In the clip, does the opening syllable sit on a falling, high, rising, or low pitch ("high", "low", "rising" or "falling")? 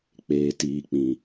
low